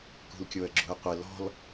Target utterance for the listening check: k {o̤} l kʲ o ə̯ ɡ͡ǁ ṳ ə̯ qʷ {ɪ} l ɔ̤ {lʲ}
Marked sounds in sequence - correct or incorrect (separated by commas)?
incorrect, correct, incorrect